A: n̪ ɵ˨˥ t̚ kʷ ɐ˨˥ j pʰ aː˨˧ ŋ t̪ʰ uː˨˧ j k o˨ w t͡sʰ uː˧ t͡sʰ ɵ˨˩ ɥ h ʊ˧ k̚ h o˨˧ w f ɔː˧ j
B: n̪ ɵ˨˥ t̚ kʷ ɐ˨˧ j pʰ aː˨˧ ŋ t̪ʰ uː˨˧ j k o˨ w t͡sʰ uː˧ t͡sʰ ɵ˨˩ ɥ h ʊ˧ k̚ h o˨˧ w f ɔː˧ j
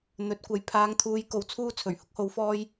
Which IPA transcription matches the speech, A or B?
A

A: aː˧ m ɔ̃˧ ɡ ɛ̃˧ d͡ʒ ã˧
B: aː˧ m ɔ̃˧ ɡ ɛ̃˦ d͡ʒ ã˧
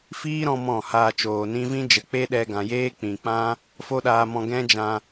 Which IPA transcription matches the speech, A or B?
B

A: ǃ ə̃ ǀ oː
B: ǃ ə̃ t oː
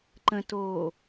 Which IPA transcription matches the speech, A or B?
B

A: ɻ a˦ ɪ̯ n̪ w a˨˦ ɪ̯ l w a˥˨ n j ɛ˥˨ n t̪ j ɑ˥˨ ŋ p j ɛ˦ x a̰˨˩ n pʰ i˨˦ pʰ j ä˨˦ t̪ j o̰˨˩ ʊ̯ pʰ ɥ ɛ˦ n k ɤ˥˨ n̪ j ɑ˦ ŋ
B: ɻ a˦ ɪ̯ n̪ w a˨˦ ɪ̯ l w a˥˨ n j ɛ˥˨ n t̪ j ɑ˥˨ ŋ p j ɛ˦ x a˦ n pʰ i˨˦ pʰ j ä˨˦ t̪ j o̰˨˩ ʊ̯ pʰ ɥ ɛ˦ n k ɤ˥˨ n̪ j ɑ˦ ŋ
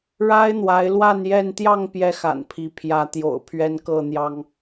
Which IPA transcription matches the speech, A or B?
A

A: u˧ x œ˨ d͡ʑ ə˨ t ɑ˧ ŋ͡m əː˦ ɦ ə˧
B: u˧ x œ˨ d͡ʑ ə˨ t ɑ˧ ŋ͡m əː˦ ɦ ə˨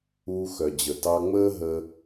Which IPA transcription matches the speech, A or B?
A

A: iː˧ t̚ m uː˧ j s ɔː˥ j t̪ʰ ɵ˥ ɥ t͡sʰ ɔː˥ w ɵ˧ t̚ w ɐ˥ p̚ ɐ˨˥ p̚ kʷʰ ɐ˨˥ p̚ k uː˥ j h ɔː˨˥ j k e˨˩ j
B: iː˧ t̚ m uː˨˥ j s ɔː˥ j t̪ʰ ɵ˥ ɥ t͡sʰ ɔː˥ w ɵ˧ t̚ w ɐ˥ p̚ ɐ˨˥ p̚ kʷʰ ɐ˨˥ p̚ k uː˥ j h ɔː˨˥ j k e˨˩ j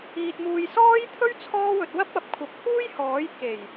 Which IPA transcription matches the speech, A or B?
A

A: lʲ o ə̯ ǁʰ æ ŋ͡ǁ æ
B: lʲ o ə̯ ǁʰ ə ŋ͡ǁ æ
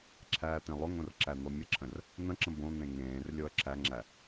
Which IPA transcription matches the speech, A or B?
A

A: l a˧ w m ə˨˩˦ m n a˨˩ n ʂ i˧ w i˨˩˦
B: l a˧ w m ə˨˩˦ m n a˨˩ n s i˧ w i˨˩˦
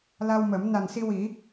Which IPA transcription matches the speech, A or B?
B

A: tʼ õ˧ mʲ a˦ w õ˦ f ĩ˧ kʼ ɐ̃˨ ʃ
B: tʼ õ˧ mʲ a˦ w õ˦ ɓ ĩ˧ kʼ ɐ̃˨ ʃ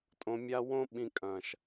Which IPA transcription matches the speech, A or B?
B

